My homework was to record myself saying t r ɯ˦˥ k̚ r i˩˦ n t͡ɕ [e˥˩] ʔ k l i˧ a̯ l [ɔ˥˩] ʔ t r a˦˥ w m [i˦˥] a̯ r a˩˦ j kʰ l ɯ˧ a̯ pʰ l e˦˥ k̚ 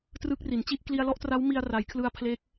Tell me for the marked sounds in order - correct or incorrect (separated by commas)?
incorrect, correct, incorrect